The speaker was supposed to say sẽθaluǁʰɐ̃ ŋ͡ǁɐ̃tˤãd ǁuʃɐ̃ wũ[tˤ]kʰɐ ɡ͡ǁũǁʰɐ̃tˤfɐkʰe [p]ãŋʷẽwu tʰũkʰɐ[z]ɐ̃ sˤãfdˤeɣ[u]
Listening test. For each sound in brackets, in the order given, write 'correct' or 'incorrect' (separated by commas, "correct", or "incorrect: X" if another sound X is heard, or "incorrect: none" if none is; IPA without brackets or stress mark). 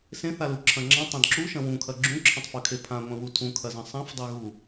incorrect: none, incorrect: pʰ, correct, correct